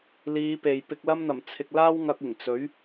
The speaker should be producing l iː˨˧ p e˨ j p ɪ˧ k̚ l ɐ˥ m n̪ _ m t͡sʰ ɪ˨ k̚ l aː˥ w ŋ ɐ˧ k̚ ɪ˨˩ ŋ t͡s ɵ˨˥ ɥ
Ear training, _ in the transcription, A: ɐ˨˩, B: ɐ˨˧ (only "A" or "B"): A